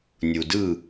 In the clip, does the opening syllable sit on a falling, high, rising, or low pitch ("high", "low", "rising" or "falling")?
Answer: low